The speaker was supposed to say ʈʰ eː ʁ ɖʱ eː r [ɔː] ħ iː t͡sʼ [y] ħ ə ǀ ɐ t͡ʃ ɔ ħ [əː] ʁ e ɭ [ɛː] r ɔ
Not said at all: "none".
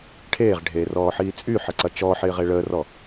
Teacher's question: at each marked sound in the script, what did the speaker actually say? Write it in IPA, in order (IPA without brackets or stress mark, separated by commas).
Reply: ɔː, y, ɪː, əː